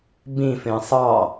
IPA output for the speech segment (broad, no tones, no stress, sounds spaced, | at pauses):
b ĩ f ẽ sˤ ɑ